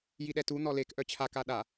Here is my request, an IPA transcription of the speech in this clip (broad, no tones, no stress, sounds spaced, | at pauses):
j i ɗ ɛ t u n̪ ɔ l e k ʔ œ t͡ɕʰ a k a ɗ a